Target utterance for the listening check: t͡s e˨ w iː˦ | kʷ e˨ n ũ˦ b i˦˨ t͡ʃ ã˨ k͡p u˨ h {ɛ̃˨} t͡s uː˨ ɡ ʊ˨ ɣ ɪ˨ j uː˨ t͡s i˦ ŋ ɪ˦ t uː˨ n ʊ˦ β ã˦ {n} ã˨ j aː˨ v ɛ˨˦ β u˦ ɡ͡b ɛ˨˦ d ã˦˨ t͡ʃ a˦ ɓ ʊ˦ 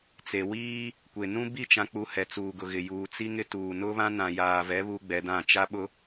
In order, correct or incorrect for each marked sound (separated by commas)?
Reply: incorrect, correct